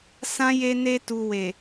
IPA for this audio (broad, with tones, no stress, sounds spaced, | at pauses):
s ã˦ j e˦ n e˦ t u˧ w e˨